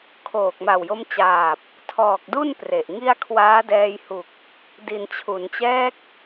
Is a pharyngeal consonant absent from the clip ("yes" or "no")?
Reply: yes